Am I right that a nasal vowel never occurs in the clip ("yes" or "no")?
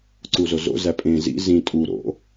no